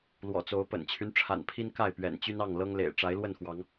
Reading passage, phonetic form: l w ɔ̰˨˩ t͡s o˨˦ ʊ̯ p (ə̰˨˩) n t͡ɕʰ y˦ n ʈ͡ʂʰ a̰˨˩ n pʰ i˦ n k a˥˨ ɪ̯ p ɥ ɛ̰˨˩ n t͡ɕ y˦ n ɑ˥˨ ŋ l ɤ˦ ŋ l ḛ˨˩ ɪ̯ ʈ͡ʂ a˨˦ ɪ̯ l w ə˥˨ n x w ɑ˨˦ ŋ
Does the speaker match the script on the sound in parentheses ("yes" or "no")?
yes